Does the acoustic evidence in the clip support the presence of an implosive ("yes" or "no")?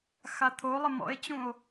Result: no